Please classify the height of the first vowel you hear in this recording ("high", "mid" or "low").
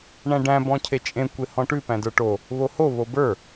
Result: low